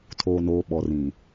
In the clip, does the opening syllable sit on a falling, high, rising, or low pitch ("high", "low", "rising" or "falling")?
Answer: low